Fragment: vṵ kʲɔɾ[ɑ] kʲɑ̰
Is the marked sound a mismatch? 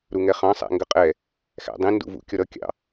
yes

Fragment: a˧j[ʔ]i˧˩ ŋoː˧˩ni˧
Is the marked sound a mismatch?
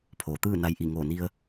no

